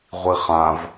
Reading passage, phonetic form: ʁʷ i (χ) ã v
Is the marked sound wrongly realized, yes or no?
no